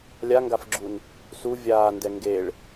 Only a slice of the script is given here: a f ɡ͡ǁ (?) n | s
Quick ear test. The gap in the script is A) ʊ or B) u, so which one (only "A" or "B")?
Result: B